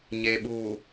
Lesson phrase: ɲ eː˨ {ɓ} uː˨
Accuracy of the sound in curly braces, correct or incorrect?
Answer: correct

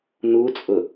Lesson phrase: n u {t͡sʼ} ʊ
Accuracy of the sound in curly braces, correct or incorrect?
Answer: correct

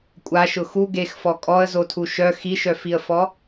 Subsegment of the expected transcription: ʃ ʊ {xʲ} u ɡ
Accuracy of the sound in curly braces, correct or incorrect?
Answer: incorrect: x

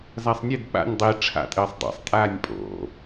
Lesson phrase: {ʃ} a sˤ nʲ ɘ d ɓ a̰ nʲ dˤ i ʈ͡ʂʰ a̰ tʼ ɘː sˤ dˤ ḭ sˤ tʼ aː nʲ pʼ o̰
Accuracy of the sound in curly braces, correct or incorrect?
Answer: incorrect: z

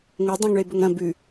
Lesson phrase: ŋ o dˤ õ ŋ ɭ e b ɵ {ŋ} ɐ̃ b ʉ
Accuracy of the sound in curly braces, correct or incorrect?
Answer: correct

